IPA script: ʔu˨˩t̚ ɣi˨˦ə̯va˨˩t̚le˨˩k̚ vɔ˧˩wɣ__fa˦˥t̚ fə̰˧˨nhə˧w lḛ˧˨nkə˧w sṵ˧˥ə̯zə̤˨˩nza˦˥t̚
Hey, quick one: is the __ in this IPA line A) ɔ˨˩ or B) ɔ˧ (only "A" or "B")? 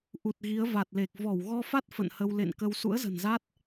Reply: B